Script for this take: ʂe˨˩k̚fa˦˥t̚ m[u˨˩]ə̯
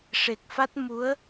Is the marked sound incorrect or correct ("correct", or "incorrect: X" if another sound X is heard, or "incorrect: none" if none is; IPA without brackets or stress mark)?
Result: incorrect: u˧˥